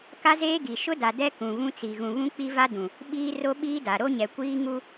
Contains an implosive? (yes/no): yes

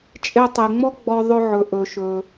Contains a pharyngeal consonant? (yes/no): yes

